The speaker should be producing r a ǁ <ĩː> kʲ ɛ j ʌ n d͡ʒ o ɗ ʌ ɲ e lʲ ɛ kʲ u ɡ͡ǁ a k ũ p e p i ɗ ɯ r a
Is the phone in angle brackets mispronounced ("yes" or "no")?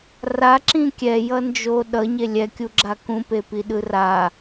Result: yes